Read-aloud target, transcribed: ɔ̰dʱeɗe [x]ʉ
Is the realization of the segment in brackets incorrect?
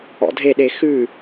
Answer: no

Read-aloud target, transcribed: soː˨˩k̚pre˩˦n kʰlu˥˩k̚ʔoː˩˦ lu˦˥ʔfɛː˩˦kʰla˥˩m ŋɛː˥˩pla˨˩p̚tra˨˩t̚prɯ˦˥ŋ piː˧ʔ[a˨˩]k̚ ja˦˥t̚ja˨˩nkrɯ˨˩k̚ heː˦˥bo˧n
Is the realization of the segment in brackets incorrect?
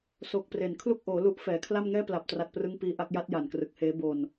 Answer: yes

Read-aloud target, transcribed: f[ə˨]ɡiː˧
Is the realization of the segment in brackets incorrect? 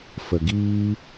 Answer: no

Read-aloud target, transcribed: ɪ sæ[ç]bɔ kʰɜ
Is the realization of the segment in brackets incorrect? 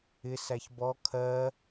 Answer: no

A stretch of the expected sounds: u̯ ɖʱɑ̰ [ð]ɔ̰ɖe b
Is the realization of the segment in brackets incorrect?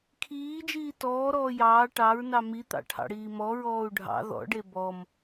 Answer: no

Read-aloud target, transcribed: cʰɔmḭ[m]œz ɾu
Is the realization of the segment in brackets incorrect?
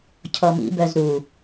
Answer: yes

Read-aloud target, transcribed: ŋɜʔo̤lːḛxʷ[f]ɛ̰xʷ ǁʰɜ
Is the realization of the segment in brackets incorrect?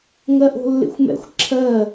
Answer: yes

